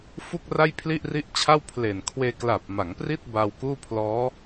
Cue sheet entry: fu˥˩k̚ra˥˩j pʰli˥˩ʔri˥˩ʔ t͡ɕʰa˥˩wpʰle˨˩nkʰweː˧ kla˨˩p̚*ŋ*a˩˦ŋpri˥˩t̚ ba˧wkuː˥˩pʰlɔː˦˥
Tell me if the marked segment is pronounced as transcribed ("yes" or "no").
no